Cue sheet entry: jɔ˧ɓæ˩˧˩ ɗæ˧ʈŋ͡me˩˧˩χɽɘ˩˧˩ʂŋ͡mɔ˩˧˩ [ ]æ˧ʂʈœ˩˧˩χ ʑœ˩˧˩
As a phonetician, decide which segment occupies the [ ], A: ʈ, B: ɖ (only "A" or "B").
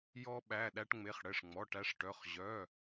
A